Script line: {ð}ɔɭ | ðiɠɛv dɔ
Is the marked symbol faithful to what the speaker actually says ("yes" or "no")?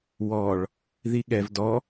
no